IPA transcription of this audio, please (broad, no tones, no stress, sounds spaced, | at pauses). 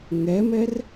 ŋ ɛ m ɛ r